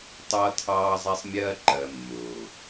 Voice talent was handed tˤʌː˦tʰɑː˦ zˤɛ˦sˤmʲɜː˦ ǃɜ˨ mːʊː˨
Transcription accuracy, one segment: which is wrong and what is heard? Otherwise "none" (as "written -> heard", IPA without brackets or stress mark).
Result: none